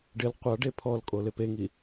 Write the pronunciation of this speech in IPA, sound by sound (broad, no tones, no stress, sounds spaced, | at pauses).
ɖ ɪ l qʷ a ɖ e pʰ ɔ l kʼ o l ɪ p e ŋ i